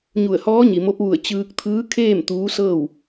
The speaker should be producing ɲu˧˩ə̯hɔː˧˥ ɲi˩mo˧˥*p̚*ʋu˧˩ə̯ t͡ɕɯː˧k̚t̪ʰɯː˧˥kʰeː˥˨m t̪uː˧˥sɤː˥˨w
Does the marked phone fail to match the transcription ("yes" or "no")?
no